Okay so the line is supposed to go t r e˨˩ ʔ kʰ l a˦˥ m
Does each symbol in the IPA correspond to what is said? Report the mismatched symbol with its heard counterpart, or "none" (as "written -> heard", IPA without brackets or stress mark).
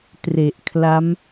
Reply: none